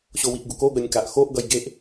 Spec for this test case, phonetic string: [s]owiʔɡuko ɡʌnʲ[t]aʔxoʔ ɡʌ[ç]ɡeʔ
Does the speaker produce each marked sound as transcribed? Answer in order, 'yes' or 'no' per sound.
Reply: no, no, no

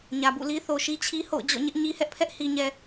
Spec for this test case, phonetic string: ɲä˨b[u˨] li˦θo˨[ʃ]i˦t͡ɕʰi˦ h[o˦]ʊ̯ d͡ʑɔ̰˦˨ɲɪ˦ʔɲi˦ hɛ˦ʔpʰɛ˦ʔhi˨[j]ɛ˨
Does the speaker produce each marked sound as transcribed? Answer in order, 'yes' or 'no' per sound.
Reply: no, yes, no, no

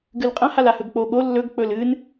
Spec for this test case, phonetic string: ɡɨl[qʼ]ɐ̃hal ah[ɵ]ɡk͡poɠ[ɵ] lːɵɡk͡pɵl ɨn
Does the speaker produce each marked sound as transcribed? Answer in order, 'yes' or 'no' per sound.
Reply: yes, yes, no

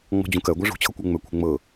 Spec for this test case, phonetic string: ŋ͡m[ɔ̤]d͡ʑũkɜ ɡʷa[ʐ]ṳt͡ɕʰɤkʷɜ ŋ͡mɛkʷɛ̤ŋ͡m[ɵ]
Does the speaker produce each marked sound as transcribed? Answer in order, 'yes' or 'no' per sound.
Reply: yes, yes, no

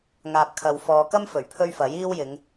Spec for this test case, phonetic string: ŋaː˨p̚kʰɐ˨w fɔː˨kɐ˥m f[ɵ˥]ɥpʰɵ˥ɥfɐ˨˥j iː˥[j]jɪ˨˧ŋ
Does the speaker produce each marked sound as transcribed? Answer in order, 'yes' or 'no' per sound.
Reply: no, no

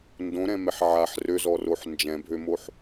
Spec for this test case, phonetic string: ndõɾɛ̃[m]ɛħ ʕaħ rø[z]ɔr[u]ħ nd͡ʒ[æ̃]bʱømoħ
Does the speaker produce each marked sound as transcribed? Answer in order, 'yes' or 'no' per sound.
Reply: yes, yes, no, no

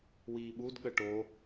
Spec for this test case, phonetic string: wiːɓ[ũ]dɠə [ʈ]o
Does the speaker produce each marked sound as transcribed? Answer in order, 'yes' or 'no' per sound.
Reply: no, yes

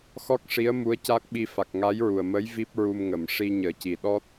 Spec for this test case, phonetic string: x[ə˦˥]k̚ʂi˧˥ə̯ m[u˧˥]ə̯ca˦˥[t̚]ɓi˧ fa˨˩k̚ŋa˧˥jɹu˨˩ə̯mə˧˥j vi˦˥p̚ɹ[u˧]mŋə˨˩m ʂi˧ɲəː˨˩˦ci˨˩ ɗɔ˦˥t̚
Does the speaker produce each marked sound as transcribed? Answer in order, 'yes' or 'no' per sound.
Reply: no, yes, no, yes

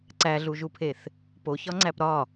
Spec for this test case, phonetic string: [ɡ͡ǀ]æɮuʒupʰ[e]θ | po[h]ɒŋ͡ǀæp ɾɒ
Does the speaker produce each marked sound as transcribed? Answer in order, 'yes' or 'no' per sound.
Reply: no, yes, no

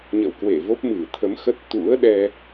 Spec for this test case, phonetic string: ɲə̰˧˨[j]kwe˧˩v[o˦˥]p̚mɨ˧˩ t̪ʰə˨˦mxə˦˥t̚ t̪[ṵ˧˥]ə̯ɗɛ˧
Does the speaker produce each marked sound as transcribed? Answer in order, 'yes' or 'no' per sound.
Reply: no, yes, yes

